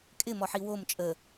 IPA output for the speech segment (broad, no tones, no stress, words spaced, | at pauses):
kʼɪmɔħi wom t͡ʃʼə